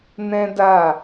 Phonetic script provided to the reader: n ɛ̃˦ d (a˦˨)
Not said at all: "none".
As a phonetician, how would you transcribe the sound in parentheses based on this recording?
a˦˨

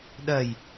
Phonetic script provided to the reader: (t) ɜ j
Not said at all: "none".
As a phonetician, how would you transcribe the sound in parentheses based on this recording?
ɗ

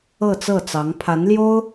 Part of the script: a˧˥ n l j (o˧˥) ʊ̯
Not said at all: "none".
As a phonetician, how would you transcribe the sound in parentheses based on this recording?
o˥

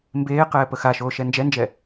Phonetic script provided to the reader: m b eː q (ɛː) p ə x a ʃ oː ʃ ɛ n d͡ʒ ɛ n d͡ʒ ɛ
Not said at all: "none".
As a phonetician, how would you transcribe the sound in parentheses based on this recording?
ɛː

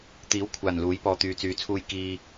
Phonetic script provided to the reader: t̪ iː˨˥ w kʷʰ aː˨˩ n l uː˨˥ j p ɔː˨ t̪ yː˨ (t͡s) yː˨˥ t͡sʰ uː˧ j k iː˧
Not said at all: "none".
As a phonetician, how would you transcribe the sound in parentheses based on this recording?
t͡s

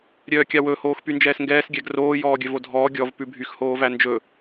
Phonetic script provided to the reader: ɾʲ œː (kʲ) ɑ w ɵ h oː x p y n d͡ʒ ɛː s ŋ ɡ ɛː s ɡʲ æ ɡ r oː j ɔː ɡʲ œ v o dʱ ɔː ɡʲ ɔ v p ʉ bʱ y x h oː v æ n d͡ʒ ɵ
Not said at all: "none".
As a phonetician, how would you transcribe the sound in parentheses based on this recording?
kʲ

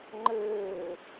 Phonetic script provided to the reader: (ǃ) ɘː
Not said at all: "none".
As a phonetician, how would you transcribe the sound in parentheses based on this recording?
ŋ͡ǃ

